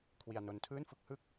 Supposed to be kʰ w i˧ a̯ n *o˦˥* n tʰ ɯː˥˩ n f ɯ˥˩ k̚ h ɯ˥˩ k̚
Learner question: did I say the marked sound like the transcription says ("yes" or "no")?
yes